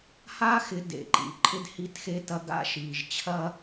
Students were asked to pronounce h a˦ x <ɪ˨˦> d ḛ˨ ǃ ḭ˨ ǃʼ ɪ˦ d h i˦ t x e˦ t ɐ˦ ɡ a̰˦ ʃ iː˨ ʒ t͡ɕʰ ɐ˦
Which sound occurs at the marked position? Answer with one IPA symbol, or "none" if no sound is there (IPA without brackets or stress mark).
ɪ˨˦